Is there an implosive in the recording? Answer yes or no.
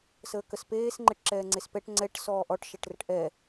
no